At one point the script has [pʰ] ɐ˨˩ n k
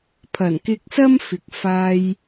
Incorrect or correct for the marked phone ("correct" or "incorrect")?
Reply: correct